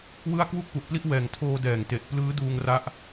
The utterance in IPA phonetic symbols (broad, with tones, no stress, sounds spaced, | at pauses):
w ɯ˥˩ a̯ k w u˥˩ k̚ p u˨˩ ʔ p l i˥˩ ʔ w ɛː˨˩ ŋ tʰ oː˧ d ɛː˨˩ ŋ t e˨˩ ʔ p l ɯː˦˥ d uː˧ ŋ r a˦˥ ʔ